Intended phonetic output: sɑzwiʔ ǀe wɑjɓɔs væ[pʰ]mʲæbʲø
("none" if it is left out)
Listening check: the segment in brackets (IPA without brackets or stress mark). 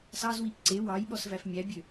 f